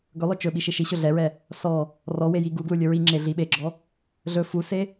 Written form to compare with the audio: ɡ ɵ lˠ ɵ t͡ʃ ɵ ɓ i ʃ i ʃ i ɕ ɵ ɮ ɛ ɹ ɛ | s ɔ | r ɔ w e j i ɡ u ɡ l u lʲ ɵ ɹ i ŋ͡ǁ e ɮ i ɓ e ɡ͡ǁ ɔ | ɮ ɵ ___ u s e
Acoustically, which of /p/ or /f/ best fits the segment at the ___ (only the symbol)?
f